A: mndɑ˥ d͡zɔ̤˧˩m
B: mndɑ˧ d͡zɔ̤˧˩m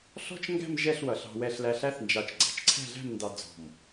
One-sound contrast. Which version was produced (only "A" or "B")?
B